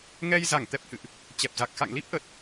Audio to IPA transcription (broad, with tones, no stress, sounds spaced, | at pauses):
ŋ ɛ˧ j z a˧˩ ŋ t̪ ɛ˨˩ p̚ h ɨ̰˧˨ ʔ | t͡ɕ ɛ˨˩ p̚ z a˨˩ k̚ x a̰˧˨ ŋ l i˦˥ p̚ ʔ ə˨˩ t̚